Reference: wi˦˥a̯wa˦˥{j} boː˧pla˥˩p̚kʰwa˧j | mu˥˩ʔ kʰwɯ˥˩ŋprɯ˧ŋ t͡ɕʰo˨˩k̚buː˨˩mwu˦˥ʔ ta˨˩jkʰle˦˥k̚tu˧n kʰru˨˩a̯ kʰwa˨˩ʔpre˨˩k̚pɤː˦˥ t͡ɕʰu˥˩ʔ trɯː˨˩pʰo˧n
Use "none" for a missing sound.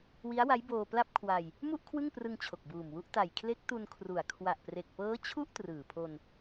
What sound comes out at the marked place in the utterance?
j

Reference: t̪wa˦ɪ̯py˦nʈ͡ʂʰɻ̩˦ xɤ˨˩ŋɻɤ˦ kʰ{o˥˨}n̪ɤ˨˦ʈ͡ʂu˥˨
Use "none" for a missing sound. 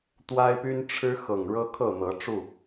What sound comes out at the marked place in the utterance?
ɤ˥˨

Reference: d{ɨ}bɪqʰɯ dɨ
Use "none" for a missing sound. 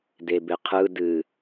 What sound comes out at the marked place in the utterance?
e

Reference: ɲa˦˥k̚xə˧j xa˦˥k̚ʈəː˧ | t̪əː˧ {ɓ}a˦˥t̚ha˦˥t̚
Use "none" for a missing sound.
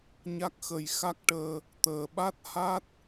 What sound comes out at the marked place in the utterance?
ɓ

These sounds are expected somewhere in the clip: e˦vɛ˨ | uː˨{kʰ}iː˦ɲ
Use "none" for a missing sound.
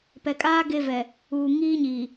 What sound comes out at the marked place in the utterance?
ŋ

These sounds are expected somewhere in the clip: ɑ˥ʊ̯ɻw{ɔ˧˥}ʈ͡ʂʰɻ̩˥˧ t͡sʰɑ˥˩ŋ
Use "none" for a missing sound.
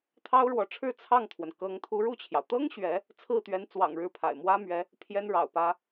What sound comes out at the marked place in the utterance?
ɔ˧˥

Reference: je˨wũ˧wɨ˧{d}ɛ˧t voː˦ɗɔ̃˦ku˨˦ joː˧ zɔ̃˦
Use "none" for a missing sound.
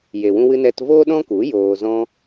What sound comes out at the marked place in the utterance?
n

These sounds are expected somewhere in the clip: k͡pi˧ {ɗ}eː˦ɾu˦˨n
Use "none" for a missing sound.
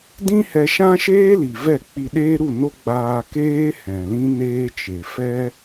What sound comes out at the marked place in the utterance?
ɗ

